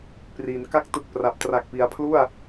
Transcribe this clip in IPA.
p r i˩˦ n k a˦˥ k̚ t ɯ˨˩ k̚ p r a˨˩ p̚ t r a˨˩ k̚ p i˩˦ a̯ pʰ l u˥˩ a̯

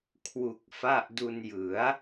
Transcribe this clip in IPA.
kʰ w u˨˩ k̚ f a˥˩ ʔ d u˧ n j ɯ˩˦ a̯

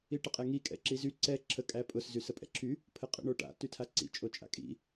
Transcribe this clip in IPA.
i ʈ ə qʼ ɛ ŋ i kʼ ɛ̰ ǁ i z y ǀ ɛ ǁʰ ə kʼ æ pʼ ʊ s z y s ə pʼ ɛ̰ ǁʰ y | pʰ ə qʼ ɛ̰ ɳ o ʈ a̰ t y tʰ a ǀ ḭ t͡ʃʼ o t͡ʃʼ a̰ kʼ ḭ

